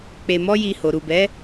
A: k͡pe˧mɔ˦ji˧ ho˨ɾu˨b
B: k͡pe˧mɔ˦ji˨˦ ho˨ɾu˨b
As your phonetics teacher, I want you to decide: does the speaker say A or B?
A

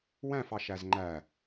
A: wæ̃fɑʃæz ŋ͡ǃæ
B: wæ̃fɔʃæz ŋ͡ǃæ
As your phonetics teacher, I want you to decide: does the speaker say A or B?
A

